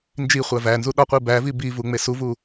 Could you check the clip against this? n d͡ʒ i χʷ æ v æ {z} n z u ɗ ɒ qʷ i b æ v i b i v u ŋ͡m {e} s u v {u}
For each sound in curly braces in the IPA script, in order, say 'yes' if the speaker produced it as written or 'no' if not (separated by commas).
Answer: no, yes, yes